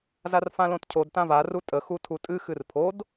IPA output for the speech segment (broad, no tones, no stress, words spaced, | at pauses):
zarfãlõtcʰod tãva rutʼə xutʰutʼɨ xɨrpʰod